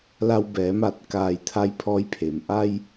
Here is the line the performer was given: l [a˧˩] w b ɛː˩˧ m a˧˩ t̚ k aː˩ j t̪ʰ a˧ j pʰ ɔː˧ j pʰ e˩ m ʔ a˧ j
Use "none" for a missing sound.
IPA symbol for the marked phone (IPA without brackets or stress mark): a˧